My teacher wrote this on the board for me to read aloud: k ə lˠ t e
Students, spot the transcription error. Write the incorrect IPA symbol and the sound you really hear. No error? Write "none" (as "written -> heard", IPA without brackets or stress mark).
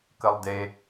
t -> d